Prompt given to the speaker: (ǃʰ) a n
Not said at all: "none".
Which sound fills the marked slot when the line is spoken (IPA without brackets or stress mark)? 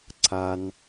ǀʰ